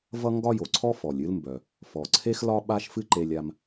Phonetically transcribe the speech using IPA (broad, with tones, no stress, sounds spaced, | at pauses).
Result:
v ʌ˥ ŋ ɡ ɒ˥ j o˩ ǀʰ ɔ˥ f ɔ˩ lʲ ɨ˥ l m b œ˩ | f ɔ˩ ǀʰ e˥ x l ɒ˥ ɓ a˥ ʃ f ɨ˥ ǃ e˧ lʲ a˧ m